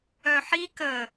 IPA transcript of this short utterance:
œ ħ i k ə

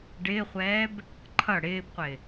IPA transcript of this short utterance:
ɖ ɪː χʷ ɛː b | ǃʰ ʌ ɽ ɪː b qʷ ɪ

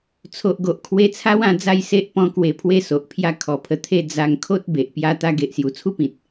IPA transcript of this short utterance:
t͡sʰ o˨ ʔ ɡ o˨ ʔ kʰ w e˧ t͡sʰ a˦ w ã˧ d͡z a˥˧ j s e˦ ʔ p ɔ̃˧ k w e˨˩ pʰ w e˧ s o˨ ʔ pʰ j a˦ kʰ ɔ˨˩ pʰ ə˧ t̪ʰ e˧ d͡z a˧ ŋ kʰ o˦ t̚ b e˨ ʔ p j a˦ t̪ a˧ ɡ e˨ ʔ s j u˨˩ t͡sʰ u˦ p ĩ˨ t̚

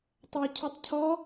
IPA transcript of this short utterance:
tˤ æ cʰ u tˤ cʰ ɔ

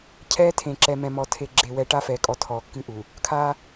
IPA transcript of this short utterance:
cʰ ɛː˦ tʰ ẽ˨ ǁ ɛ˨ m ɛ̃˨ m ɔ˨ tʰ e˨ ɡ͡ǁ e˨ w ɛ˨ ʈ a˦ f ɛː˨ kʼ ɔ˨ tʰ ɔː˨ kː ɨ˦ ʔ u˨ | kʰ aː˦

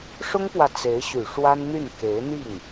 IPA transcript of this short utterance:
ʂ ʊ˥ ŋ p w ä˨ t͡s e˧˥ ɪ̯ ɕ y˨˩ ʂ w a˥ n n̪ y˥˩ n k e˧˥ ɪ̯ n̪ i˥˩ ŋ

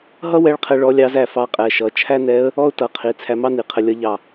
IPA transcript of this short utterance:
ɦ ʌ˥ w ɛ˧˥ ɭ qʰ ɛ˧ ɭ ɔ˧˥ lʲ ɑ˧˥ z æ˥˩ f ɑ˧˥ qʼ ɛ˩˧˩ ʃ ʌ˩˧˩ t͡ʃʰ æ˥ n ɛ˧˥ ə̯ | ɔ˥ ʊ̯ t ʌ˩˧˩ qʰ i˩˧˩ t͡sʰ æ˧ m ɑ˥ n i˩˧˩ qʰ ə˧ lʲ ʌ˧˥ ʎ ɑ˧˩

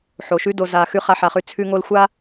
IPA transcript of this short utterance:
ħ o˨ ʃ ʉ˦ d o˨ z a˨ x ʉ˦ χ a˧ ħ a˧ χ ʉ˦ t͡sʰ ʉ˦ ŋ o˦ l xʷ a˦

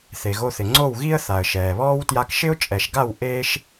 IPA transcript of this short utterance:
θ e˨ ɣ o˧ θ ɪ˨ ŋ͡ǀ o˦˨ w ɣ i˦ ə̯ θ a˨ ə̯ ʃ ɛː˨ β ɔː˦ w t j a˧ k ʃ ɪ˦ ʊ̯ t͡ʃʼ ɛ˨ ʃ ɡ a˦˨ w ʔ eː˦ ʃ

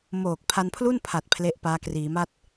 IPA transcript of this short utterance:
m oː˨˩ k̚ pʰ a˧ n pʰ l u˥˩ n pʰ a˨˩ t̚ pʰ l e˦˥ ʔ p aː˦˥ k r iː˩˦ m a˥˩ t̚

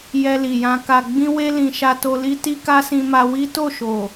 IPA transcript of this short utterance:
j ɛ˧ l i˨ j ã˧ k a˨ ɡ͡b ĩ˧ w e˧ l ĩ˨ ʃ a˧ t o˧ l i˦ t i˦ k a˦ s ĩ˧ m a˧ w i˦ t o˦˨ ʃ o˨

